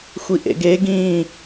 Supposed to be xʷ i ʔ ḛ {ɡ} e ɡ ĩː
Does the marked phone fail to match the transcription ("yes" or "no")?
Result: no